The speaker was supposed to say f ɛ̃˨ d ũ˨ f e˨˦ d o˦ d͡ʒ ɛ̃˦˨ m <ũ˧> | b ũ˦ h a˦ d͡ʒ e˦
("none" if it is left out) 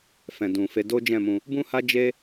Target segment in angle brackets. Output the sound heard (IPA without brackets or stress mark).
ũ˧